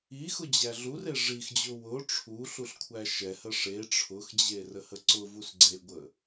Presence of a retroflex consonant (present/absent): present